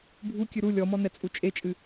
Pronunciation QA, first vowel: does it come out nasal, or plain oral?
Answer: oral